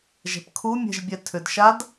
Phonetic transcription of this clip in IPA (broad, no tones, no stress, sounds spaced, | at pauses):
ʒ ɛ̤ p kʰ u mʲ ɛ̤ ʒ bʲ ɛ tʰ ʏ d ʃ a d